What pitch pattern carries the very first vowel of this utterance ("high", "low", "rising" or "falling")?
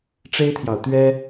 high